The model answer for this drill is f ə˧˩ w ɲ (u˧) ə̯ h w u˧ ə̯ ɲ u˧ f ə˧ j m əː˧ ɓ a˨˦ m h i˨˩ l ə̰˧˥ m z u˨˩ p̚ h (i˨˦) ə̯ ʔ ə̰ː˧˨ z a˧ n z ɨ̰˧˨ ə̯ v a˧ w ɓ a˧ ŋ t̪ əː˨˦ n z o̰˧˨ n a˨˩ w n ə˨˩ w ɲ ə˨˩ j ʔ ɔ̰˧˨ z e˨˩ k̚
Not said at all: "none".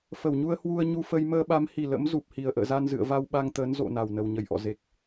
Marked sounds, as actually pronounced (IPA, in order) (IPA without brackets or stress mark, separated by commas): u˧, i˨˩